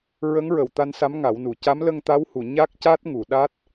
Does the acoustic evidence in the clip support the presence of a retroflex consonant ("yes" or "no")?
no